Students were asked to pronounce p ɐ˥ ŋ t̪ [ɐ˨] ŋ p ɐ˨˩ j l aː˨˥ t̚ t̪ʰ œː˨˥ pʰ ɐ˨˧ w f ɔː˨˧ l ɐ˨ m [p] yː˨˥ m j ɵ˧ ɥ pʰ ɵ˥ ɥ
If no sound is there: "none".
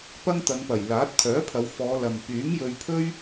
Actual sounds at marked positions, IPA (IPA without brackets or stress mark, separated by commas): ɐ˨˧, p